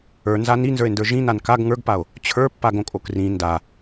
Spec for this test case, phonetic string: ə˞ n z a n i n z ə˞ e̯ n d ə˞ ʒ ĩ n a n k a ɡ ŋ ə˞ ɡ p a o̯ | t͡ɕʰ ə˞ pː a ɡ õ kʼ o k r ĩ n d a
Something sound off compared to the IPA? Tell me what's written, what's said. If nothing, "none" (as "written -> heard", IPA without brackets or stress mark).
none